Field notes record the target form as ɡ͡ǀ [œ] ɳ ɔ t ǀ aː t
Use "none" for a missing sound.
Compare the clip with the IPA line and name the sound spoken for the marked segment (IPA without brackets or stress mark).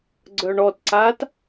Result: œ